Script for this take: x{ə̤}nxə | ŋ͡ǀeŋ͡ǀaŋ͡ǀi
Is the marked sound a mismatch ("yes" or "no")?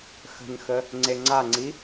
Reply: no